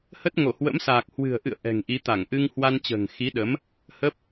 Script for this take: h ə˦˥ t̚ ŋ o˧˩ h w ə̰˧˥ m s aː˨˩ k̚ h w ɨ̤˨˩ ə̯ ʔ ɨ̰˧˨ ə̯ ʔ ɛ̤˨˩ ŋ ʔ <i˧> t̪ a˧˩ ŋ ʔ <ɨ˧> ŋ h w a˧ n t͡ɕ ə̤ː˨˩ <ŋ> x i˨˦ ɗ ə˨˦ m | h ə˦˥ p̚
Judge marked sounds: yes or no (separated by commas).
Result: no, yes, yes